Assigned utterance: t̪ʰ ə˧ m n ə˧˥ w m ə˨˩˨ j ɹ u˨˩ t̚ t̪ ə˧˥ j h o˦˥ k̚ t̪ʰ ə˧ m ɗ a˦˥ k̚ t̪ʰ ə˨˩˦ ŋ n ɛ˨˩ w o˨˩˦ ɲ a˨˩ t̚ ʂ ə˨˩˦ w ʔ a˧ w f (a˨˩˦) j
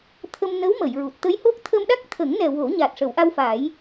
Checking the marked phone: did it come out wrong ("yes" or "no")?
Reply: no